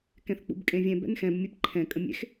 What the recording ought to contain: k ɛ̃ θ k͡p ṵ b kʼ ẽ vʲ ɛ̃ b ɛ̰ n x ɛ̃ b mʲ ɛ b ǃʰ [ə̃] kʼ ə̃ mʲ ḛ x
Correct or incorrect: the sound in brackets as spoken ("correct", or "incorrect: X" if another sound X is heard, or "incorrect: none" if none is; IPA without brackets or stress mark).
incorrect: ɛ̃